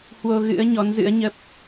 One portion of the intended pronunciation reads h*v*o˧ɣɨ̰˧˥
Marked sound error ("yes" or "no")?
yes